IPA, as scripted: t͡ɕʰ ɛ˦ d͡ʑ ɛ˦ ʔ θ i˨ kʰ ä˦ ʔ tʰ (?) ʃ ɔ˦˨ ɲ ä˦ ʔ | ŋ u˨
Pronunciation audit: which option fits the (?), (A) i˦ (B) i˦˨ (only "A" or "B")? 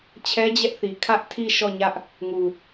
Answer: B